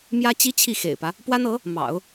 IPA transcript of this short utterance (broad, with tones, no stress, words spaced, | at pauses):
mjä˥t͡ɕi˥ t͡ɕʰi˥˩xḛ˨˩ɪ̯pä˦ | pwa˥nɤ˧˥ | mɑ̰˨˩˦ʊ̯